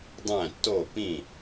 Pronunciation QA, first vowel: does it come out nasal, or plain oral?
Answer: nasal